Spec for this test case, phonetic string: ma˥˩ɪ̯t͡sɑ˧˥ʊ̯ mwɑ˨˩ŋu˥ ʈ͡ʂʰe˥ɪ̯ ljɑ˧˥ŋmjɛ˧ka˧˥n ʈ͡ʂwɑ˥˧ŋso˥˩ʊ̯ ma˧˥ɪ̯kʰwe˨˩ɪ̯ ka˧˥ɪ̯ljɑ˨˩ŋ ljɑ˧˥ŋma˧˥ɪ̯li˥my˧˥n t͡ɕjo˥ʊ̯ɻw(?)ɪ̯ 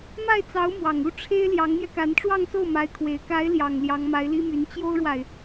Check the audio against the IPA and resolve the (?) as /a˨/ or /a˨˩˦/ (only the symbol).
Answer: a˨